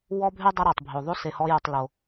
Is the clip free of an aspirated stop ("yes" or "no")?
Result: yes